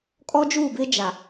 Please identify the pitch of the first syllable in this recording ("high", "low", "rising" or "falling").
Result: high